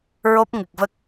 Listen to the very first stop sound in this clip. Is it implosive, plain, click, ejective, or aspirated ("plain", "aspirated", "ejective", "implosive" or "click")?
plain